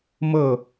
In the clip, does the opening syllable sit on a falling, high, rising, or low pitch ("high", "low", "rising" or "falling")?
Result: falling